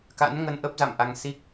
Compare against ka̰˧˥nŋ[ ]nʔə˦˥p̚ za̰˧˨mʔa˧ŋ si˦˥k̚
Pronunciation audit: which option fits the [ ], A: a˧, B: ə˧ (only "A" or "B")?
B